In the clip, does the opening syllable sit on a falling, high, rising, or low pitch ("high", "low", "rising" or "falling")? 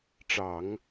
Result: low